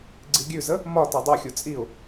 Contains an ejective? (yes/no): yes